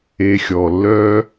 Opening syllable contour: low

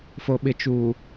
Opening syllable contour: low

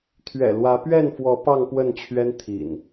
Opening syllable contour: low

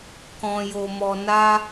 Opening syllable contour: low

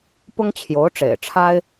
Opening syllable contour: high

